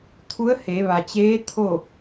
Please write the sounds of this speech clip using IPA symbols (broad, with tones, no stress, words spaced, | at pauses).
t̪ʰu˧˥ə̯he˩˧ʋa˩t͡ɕeː˧˥ t̪ʰo˥˨